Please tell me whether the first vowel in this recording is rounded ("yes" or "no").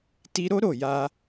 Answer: no